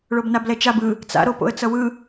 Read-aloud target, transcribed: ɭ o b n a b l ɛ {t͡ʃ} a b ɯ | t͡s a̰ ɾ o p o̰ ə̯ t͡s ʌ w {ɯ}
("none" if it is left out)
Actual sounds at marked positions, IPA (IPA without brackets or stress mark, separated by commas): t͡ʃ, ɯ